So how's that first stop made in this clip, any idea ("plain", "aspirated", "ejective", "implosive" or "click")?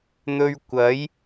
plain